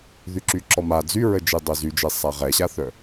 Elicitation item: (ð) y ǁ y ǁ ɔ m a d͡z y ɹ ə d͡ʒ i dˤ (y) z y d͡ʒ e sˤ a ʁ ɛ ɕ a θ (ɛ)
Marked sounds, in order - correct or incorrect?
correct, incorrect: ø, incorrect: œ

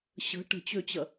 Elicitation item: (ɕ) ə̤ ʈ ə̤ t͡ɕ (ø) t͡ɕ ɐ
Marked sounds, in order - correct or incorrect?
correct, correct

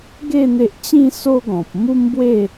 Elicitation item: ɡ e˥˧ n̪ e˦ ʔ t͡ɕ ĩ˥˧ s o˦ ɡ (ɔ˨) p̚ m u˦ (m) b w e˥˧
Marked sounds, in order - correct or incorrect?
incorrect: ɔ̃˨, correct

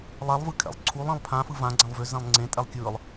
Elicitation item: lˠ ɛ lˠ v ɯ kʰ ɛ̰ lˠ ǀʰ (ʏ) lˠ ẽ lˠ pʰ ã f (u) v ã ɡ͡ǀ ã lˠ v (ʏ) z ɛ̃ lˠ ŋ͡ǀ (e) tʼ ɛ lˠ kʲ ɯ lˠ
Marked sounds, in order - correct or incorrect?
incorrect: u, incorrect: ɯ, correct, incorrect: ẽ

